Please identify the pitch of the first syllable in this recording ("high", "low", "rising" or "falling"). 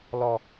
low